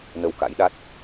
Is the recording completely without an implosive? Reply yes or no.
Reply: no